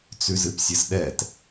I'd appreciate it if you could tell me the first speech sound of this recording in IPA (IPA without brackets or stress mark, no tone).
t͡s